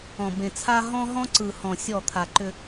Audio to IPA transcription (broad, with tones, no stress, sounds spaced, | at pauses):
ɔ̃˨ b ẽ˨ t͡sʰ a˦ ɦ ɔ̃˦ ɦ ɔ̃˦ ǀ ɯ˨ h ɔ̃˨ sʲ ɔ˦˨ t̪ʰ a˨ ǃ ʏ˦